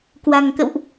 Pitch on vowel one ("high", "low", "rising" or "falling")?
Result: low